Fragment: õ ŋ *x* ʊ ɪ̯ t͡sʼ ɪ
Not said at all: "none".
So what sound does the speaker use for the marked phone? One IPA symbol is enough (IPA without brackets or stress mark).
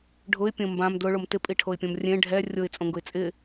ɡ